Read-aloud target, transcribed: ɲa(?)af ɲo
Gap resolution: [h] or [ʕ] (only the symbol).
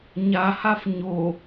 h